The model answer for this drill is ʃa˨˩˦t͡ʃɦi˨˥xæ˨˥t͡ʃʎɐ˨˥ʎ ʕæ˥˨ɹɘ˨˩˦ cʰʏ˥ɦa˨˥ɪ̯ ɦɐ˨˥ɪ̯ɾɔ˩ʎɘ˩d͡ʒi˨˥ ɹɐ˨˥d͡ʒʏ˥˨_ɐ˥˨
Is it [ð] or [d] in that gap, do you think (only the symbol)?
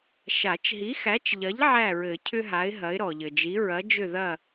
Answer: ð